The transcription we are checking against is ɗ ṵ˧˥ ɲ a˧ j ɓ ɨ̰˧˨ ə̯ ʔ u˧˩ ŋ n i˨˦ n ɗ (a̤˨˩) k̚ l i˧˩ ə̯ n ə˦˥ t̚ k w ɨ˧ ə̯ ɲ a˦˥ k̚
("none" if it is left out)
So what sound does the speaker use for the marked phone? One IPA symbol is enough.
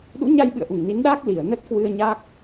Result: a˦˥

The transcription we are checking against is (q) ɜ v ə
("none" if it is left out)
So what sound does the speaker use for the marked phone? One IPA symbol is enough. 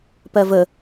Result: p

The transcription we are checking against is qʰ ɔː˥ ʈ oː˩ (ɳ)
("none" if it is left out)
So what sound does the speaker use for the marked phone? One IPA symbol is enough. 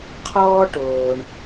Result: ɳ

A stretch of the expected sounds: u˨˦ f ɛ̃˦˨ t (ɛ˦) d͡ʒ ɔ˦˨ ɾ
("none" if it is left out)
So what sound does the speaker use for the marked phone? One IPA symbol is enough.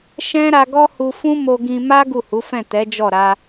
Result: ɛ˨˦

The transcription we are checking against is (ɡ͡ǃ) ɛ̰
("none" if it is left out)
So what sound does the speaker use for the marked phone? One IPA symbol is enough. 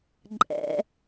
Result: ǃʼ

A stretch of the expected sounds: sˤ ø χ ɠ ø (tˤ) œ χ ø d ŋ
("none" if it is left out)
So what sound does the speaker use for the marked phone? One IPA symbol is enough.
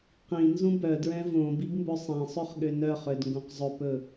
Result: n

